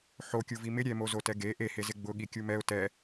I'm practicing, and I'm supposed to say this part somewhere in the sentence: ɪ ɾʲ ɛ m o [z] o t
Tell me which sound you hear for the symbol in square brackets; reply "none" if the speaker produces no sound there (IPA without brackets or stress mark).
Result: z